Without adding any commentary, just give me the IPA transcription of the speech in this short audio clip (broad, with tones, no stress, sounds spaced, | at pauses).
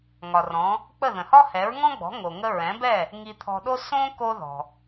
ŋ ɒ˩ r ɔ̃˩˥ | k͡p ə˥˩ ð ə̃˩ h ɒ˥ h ɛ˩˥ ɹ ŋ ɔ̃˥ ɡ͡b ɔ̤˩˥ ŋ o˩ ŋ ə˥ ɹ ɛ̃˩˥ b ɛ˥˩ | ŋ i˧ t̪ʰ ɔ̤˧ ɗ o˥ s õ˥ k o˥ ð ɔ̤˩